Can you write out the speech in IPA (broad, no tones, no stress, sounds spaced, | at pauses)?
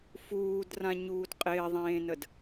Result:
f uː d r ã ɲ uː d qʼ ɪː ðˤ ẽː n ə d